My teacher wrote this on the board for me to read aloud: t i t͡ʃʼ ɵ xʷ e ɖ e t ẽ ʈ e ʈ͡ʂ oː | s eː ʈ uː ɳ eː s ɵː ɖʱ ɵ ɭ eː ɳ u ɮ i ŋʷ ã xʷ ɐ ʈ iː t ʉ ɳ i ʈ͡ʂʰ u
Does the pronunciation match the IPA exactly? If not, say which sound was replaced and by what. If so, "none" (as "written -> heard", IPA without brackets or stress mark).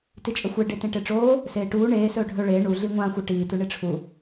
none